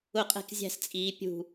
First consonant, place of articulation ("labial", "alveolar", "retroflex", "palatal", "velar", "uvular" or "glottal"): uvular